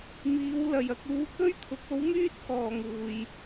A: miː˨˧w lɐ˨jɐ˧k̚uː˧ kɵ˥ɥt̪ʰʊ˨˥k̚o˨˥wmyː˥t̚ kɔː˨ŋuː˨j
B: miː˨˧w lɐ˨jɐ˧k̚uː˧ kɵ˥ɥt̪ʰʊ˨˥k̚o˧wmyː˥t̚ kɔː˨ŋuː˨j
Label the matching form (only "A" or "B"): A